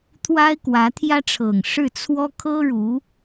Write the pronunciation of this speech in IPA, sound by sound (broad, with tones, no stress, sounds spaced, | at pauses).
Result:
t̪ʰ w a˥ ɪ̯ k w ä˧˥ t̪ʰ j ä˥ ʈ͡ʂʰ ɤ˨˩ ŋ ʂ ɻ̩˥˩ t͡sʰ w ɔ˥ kʰ ɤ˥ ɻ u˧˥